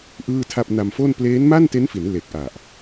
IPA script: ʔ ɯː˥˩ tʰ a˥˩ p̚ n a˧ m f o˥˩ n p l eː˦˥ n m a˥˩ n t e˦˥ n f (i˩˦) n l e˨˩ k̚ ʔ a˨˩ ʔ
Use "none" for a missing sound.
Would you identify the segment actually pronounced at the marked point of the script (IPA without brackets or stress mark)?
i˩˦